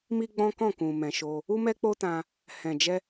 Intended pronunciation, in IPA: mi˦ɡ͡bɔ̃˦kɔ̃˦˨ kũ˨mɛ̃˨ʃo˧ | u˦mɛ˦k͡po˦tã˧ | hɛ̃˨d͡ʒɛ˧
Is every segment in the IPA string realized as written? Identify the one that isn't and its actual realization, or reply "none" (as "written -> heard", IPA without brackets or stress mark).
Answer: none